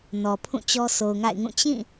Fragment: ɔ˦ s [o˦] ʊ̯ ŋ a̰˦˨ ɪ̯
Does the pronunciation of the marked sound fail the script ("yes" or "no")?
yes